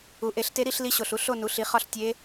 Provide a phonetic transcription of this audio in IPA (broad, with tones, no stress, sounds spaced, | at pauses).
u˩˥ ʔ e˩˥ ɬ t e˧˥ ɾ i˥˨ ɬ l i˧˥ ɕ o˨˩ ɬ u˥˨ ɬ o˥˨ n u˩˥ ɬ i˩˥ χ ɒ˥˨ ɬ tʲ e˧˥